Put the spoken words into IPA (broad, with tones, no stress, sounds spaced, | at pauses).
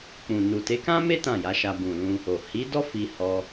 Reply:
k͡p ũ˨ n u˨ t e˨˦ k ã˦ m e˦ t ã˦˨ j a˨˦ ʃ a˧ b ũ˨ l ũ˧ | o˨ h i˨˦ d ɔ˦ f i˧ h ɔ˧